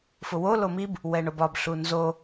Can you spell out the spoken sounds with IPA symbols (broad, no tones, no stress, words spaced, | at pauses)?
fʊwo lomib | wɛɳobɒb ɬunzo